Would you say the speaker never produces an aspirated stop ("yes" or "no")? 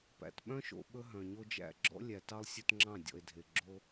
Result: yes